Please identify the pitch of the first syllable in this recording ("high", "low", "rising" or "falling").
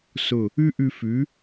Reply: falling